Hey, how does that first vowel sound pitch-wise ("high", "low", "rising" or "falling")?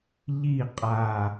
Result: falling